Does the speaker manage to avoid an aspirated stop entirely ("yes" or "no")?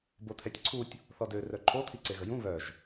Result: no